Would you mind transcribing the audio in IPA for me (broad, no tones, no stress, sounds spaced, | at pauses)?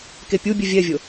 k e pʲ u bʲ ø vʲ ɛ vʲ o